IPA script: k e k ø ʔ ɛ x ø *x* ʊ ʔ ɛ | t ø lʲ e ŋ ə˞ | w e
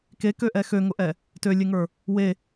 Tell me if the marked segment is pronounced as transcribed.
no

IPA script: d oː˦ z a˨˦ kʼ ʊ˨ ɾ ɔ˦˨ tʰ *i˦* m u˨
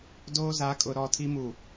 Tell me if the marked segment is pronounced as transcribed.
yes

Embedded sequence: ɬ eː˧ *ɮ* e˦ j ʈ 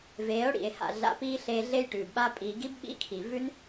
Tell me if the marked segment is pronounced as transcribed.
yes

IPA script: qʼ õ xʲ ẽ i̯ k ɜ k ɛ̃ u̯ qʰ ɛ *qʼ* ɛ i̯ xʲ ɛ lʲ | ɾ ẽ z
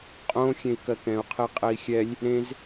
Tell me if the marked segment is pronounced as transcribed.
yes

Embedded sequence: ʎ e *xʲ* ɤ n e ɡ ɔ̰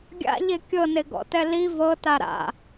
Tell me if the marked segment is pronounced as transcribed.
no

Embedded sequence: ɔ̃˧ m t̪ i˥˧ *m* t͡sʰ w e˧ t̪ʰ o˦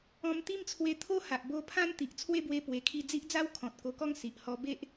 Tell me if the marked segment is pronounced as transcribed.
yes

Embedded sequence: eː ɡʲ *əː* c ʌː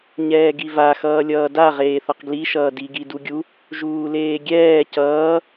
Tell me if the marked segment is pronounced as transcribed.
no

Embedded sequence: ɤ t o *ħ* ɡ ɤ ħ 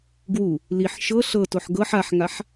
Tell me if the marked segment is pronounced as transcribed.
yes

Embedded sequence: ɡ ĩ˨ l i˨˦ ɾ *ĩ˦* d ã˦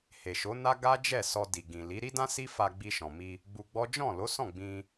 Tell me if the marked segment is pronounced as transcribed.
no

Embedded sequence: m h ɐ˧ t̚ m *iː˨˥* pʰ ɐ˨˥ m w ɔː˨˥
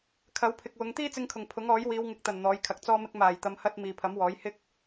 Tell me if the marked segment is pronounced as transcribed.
no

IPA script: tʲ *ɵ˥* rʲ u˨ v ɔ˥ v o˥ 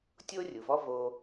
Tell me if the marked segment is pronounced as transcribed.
no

